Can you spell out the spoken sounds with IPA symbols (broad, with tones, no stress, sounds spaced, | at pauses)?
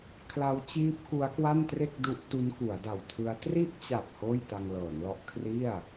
kʰ l a˦˥ w t͡ɕ iː˦˥ p̚ k u˦˥ a̯ k w a˥˩ n t r e˥˩ k̚ d u˦˥ ʔ t u˦˥ n k u˩˦ a̯ d a˨˩ w tʰ ɯ˦˥ a̯ t r i˥˩ ʔ t͡ɕ a˨˩ p̚ h oː˥˩ j t a˧ ŋ l ɤː˩˦ n l ɔ˦˥ ʔ kʰ r i˥˩ a̯